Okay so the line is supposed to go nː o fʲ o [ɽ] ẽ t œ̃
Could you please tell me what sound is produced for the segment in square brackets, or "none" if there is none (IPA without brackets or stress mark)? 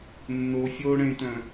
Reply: ɽ